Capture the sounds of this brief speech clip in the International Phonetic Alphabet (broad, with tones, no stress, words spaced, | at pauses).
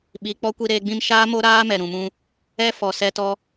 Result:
ɓi˨ k͡pɔ˦kʷi˧ɾeː˧ɡ͡bĩ˦m ʃaː˦mo˦ɾaː˦mɛ˨ ɾũ˨mũ˧ | ɛ˦ fɔ˨sɛ˧tɔ˧